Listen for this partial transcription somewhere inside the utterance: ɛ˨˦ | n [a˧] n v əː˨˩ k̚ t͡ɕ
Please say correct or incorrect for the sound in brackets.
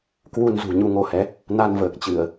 correct